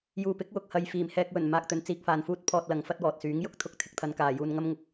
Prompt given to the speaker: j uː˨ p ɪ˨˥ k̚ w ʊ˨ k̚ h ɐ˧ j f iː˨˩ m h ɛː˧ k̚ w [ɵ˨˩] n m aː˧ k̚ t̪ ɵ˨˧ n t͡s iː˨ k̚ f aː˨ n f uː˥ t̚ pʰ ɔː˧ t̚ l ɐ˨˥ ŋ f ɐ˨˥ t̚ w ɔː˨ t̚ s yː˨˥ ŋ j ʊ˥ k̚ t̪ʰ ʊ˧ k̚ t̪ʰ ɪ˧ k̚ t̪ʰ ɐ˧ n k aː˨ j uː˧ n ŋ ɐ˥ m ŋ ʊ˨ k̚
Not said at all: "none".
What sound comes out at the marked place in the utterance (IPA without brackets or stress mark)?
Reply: ɵ˨˩